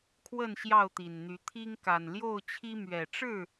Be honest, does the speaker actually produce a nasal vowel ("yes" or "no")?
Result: no